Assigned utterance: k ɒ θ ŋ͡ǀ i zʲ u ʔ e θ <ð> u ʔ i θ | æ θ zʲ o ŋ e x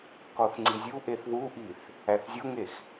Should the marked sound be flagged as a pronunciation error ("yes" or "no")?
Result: no